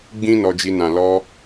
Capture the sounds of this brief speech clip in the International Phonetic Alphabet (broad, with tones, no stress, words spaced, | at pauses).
ɡ͡bĩ˦nɔ˧d͡ʒi˧ nã˨lɔ˧